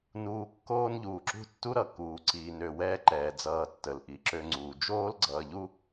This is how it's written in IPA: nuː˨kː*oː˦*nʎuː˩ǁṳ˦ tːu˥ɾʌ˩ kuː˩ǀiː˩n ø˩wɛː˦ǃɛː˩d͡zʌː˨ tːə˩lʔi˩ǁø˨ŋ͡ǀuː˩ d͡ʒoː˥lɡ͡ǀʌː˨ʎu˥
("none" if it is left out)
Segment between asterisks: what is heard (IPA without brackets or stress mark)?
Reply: oː˦